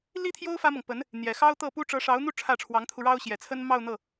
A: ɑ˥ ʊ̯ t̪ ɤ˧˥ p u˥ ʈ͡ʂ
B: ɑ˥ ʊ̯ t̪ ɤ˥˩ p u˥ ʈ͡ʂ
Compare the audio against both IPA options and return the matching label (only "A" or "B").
B